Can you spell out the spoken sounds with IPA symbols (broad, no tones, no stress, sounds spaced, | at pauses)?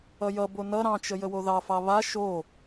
ʌ j ʌ b o n ʌ ɾ ɑ̃ t͡ʃ ə j ə w o ð ɑ f ɑ β a ʃ o